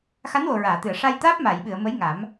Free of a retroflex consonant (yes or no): no